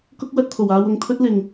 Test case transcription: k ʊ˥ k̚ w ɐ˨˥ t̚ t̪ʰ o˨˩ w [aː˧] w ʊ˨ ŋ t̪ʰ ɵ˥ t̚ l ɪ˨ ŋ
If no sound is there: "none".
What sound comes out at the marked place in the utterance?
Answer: aː˧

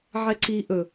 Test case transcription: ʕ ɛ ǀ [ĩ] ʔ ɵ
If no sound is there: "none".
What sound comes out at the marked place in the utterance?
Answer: i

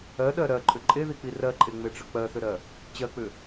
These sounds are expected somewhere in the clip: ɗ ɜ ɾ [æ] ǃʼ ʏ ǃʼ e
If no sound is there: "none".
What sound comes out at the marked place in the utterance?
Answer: ɜ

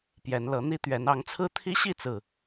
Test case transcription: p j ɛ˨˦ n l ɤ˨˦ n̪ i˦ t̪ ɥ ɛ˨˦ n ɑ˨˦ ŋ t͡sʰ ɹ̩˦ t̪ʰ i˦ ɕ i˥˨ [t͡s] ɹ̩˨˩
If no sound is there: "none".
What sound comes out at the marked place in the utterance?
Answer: t͡s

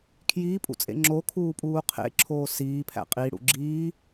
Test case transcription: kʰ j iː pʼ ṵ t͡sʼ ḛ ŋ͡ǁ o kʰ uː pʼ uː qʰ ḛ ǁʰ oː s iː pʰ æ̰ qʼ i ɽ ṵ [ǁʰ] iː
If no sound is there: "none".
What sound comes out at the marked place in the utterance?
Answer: ɡ͡ǁ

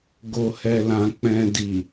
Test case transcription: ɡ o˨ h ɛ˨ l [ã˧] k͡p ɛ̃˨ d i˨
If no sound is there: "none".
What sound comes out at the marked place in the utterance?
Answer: ã˨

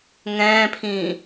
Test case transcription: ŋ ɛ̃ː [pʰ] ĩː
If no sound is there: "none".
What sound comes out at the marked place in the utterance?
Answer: pʰ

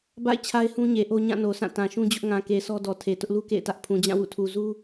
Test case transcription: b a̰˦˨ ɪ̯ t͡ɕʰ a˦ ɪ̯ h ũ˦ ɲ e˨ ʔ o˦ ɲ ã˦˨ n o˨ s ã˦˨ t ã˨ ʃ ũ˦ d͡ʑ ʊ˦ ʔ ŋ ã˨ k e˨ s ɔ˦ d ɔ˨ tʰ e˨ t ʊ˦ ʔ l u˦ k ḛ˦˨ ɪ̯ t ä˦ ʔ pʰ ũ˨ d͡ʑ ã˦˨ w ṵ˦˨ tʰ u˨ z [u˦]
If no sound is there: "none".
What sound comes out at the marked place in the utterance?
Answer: u˦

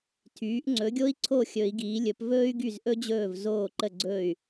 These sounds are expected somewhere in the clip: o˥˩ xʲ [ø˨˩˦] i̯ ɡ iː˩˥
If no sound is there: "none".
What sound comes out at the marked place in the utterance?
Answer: ɵ˨˩˦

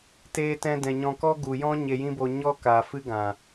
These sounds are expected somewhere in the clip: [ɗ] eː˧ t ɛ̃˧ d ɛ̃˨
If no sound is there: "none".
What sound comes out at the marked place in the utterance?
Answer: t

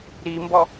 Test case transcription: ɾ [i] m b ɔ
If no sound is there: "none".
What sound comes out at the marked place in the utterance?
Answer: i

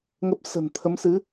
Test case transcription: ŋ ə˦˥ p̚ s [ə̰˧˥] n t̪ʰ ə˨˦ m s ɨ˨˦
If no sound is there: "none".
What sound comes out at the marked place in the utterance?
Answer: ə̤˨˩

